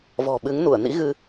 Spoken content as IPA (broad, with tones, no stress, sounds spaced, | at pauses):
v ɔ̤˨˩ ɓ ɨ˨˦ ŋ n u˧˩ ə̯ n ḭ˧˥ ɣ ɨ˧